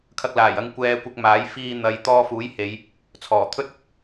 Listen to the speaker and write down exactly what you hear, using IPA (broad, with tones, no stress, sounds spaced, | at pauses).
kʰ ɐ˧ k̚ l aː˨˩ j ɐ˧ ŋ kʷ ɛː˧ kʷ ɪ˧ k̚ m aː˨˥ j f iː˧ n̪ ɐ˨ j t̪ ɔː˧ f uː˨˥ j h e˨˧ j | t͡sʰ ɔː˨˩ t̪ʰ ɵ˥ t̚ ɪ˥ k̚